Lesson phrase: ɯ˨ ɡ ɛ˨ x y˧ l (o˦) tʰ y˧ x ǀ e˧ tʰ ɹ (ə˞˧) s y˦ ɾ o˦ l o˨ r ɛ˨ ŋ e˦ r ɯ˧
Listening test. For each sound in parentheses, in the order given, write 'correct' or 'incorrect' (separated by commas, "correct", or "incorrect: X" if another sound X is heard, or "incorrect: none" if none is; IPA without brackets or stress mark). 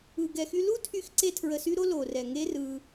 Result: incorrect: u˦, incorrect: ə˧